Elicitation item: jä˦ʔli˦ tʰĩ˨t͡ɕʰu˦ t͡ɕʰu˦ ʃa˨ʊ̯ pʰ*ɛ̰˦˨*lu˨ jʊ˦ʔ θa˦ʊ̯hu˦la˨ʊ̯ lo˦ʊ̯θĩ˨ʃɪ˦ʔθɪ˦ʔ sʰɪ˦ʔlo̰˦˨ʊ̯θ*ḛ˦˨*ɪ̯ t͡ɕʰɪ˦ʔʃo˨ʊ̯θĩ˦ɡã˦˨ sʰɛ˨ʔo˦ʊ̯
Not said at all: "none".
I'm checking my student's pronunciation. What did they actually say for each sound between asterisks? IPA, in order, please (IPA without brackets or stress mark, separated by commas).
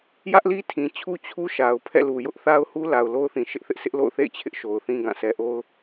ɛ̰˦˨, ḛ˦˨